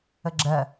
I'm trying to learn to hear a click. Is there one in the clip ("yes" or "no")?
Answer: yes